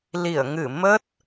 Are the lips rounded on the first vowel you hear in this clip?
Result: no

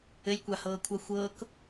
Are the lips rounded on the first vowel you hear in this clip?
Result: no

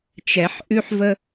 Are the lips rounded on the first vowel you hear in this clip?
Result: no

